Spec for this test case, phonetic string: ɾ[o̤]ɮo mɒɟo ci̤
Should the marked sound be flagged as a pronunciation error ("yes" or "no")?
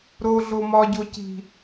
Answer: yes